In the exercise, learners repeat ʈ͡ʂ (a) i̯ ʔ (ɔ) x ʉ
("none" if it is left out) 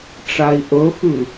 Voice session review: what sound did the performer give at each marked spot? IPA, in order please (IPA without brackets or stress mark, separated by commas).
a, ɵ